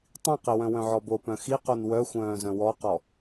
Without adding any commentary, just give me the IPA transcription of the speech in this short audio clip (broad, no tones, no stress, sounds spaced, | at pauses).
tˤ ĩ q e w œ̃ w œ̃ ʕ ɔ b o p œ̃ x i q o n w œ xʷ œ̃ː z œ̃ w ɔ q ɔ